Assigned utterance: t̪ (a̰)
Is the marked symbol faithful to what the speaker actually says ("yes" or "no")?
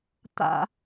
yes